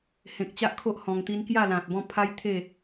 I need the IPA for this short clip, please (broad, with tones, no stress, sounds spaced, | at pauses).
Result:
h ẽ˨ k̚ t͡ɕ a˦ ʔ kʰ o˦ ʔ h ɔ̃˧ ŋ t̪ i˦ n k j a˥˧ l ã˨ t̚ b ɔ̃˥˧ pʰ a˦ j t̪ʰ e˥˧